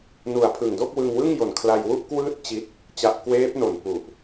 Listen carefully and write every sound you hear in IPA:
n u˨˩ a̯ pʰ ɯ˨˩ ŋ d o˥˩ k̚ w ɯ˧ ŋ w ɯ˥˩ ŋ j o˨˩ n kʰ l a˧ j w u˥˩ ʔ k w ɯː˥˩ t̚ t͡ɕ i˦˥ t̚ | t͡ɕ a˨˩ ʔ k w eː˦˥ p̚ n o˨˩ n p u˨˩ ʔ

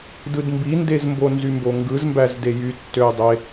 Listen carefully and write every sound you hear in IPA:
d ɯ d m b i n d e z m b o n z y m b o ŋ ɡ ɯ z m b æ z d e j y tː ø j dˤ e

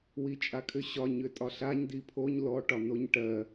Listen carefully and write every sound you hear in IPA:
w i t͡ʃʼ a kʰ ʏ ɕ ɒ ɲ ʏ tʼ ɒ ɬ a ɲ d i pʰ o ɲ l ɔ ʈ ɒ n o ɲ ʈ ɜ

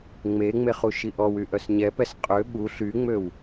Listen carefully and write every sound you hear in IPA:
ŋ͡m e ŋ͡m e χ u ʃ i ʔ ɔ w y ʔ œ s ɲ ɛ p ɛ s qʼ ø ɓ u ɬ y ŋ͡m ø w

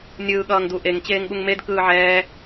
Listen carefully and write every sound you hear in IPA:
nʲ ɯː ɠ ʌː ŋ d u ʔ e ŋ t͡ɕ eː ŋ ɠ u ŋ m e d k ɯː ʕ ɛː

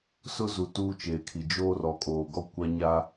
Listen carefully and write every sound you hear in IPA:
s ʊ˦ z u˨ t uː˦ t͡ʃ eː˨ kʰ i˨ d͡ʒ oː˦ r ɔ˨ kʼ oː˨ ɡ ɔ˦ kʷ a˦ ɲ a˦

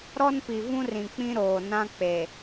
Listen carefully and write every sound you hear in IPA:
ɾ ɔ˦ n p i˨ v ũ˦ r ĩ˨ k͡p ĩ˦ ɾ oː˨ n ã˦ k͡p e˨

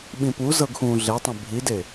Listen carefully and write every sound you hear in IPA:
ɓ ĩ p u z ɤ ɡ x ũ ɮ e tˤ ẽ bʱ i d e

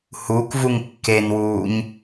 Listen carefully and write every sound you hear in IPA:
h u k v u ŋ kː e n w uː ɲ

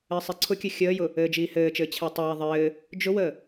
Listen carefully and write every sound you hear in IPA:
ɘː sˤ i ǀʰ ʊ kʲ ɘ xʲ əː j ʊ | ɘː d͡ʒ iː h ɘː t͡ʃ ɘː t͡ɕʰ ɛ tˤ ə j ɛ ðˤ ɘː | d͡ʒ ʊ w əː

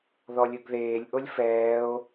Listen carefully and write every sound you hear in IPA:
ð ɔ lʲ ɯ ɡ ð eː lʲ ʔ o lʲ f ɛː o̯

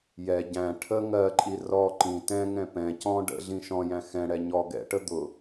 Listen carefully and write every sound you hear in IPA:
j ɛ ɟ æ̃ ʈʰ ə ŋ ɜ ǃʼ i r ɔ ǃ ĩ t ɛ̃ ŋ ɛ̃ p ɛ̃ c ɔ̃ ɖ ə̰ ɮ ĩ ʃ ɔ̃ j æ̃ x ɛ̃ ɽ ɛ ɲ ɔ ɡ ɛ̰ ʈ ə d̪ ʊ

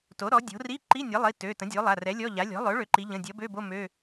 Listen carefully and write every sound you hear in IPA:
t o˩˥ ɾ ɔ˩˥ dʲ o̤˩˥ r i˧˥˧ ǃ i˧˥˧ nʲ ʌ˩˥ lˠ i˩˧˩ t ø˩˧˩ t ə̃˩˥ dʲ o˩˥ lˠ a˩˧˩ r ɛ˩˥ lʲ ɔ˧˥˧ ʎ a˩˥ lʲ ɔ̤˩˥ lˠ ø˩˥ ɭ ø˩˥ ǃ i˩˥ ʎ ə̃˩˧˩ dʲ ʌ˩˥ b ø˧˥˧ b o˧˥˧ m ø˧˥˧

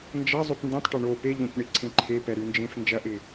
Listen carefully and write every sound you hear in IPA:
n d͡ʒ ɐ zˤ ʉ p n d ĩ tˤ ʈ o ɳ o p e ʎ õ c ɳ i ǀʰ ẽ ǃʰ e p ɛ ɾ ʉ n d͡ʒ ẽ f n d͡ʒ ɐ ʔ ɪ

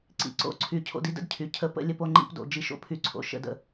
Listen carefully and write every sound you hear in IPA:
ǀ ḭ˨ ǀ o̰˦˨ ǀʰ y˨ cʰ o̰˧ d i˦ d ə̰˦ d cʰ y˨ cʰ ə˨ p ə̰˧ lʲ ə˧ p o˧ ŋ͡ǃ ḭ˧ p d o̰˨ d͡ʒ i˦˨ ʃ o̰˦ pʰ y˧ ǀʰ o̰˨ ʃ ə̰˨ d ə̰˨

